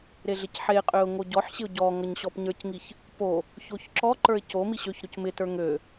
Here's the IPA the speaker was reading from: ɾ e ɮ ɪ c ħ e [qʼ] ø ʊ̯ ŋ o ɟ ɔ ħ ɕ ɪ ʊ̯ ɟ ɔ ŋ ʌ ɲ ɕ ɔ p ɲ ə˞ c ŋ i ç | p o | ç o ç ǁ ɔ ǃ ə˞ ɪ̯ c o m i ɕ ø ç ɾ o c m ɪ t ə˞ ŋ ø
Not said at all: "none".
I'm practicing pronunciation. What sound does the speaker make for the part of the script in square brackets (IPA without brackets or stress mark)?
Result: qʼ